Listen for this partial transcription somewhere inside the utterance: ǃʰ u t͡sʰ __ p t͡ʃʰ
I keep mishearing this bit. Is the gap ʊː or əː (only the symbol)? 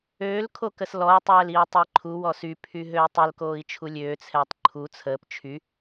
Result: əː